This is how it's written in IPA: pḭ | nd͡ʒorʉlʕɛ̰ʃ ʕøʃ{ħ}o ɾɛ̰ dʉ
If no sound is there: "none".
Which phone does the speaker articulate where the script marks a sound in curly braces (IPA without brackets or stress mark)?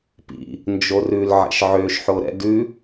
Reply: ħ